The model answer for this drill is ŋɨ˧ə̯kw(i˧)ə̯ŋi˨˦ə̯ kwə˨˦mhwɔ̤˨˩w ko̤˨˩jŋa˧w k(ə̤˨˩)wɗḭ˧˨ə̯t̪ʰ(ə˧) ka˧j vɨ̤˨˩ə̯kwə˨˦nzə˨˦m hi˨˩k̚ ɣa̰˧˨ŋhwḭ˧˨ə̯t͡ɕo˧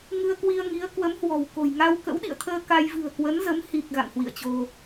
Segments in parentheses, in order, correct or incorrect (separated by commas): correct, incorrect, incorrect